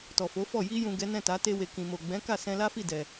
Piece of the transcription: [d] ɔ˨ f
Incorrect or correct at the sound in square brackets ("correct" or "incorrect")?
incorrect